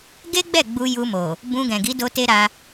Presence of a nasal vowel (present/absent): present